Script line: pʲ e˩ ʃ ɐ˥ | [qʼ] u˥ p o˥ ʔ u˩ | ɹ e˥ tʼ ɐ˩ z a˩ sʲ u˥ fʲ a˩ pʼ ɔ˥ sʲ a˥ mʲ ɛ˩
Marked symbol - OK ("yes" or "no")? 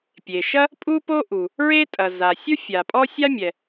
no